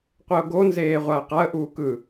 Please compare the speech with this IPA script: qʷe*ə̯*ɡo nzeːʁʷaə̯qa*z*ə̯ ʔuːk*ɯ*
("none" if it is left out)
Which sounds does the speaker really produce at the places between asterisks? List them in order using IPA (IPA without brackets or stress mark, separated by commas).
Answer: ʊ̯, none, ɯ